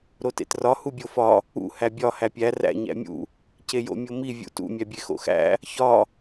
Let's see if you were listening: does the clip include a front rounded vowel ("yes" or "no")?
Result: no